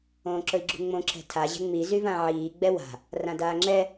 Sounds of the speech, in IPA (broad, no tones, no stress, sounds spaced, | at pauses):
õː ǁ ɵ i̯ ɡ͡ǁ ṳ ŋ͡m õ ǁʰ ɛ̤ tʰ a ʑ ɛ̤ ŋ͡m i z y v ã ʕ iː ɡ͡b ɛ w a̤ | r ã d aː ŋ͡ǁ ɛ